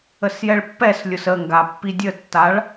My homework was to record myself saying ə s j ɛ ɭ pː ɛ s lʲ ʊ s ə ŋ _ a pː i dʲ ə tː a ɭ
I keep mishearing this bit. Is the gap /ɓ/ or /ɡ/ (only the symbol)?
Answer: ɡ